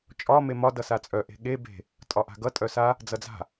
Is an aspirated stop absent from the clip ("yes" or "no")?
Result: yes